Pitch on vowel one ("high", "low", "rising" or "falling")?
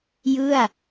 falling